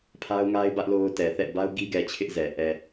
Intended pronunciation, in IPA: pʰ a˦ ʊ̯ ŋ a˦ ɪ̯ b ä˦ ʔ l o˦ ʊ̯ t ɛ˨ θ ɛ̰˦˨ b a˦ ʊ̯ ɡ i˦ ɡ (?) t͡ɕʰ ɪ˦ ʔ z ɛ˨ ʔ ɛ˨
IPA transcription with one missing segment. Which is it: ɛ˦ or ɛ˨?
ɛ˨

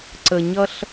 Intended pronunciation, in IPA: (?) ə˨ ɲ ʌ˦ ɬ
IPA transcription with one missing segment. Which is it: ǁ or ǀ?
ǀ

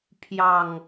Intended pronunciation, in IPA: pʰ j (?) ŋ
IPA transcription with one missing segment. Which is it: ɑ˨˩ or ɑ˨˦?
ɑ˨˩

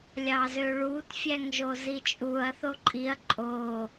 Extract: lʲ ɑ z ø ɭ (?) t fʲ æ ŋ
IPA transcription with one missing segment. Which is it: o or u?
u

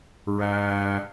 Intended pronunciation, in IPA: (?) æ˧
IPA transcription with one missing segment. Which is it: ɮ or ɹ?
ɹ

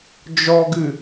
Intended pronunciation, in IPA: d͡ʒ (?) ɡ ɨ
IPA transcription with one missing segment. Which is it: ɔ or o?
ɔ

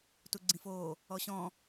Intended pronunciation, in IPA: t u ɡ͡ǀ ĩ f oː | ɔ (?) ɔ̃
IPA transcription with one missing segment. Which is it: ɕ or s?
ɕ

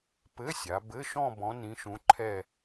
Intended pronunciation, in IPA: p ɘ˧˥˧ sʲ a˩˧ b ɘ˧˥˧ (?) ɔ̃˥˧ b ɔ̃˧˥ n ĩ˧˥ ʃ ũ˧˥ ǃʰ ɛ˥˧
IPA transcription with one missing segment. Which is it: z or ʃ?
ʃ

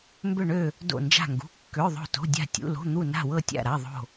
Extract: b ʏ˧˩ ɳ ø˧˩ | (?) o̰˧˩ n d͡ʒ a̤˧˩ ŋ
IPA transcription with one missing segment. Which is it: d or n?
d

